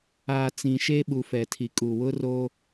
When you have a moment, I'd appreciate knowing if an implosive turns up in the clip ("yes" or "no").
yes